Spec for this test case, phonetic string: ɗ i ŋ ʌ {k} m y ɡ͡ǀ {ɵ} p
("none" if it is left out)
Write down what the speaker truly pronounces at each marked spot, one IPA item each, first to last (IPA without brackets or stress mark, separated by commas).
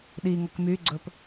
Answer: k, ɵ